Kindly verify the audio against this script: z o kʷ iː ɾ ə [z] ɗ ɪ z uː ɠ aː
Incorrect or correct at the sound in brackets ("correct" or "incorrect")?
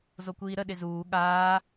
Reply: incorrect